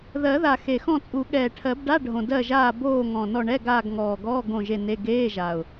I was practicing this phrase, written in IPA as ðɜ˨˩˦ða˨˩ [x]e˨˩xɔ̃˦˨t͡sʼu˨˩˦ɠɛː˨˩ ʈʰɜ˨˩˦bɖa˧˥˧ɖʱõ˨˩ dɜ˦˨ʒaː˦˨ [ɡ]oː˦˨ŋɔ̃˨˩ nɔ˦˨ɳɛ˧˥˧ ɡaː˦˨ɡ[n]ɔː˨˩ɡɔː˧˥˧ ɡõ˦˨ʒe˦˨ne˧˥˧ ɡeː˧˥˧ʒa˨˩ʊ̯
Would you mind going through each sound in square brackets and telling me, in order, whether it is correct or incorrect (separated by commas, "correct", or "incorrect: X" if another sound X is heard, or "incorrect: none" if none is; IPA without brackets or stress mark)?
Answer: correct, incorrect: b, incorrect: ŋ